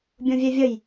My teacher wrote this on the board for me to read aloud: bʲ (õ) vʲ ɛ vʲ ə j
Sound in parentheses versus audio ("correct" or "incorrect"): correct